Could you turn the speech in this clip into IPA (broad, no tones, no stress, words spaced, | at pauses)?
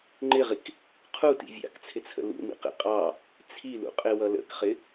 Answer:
ŋ͡ǃɪʁik | qʰutḭ vʲɑ̰kt͡sʰɪt͡sʰə̰ lṵmḭqḭ qʼɑ | t͡sʰilṵqʼɪwʌ lə̰kχɪ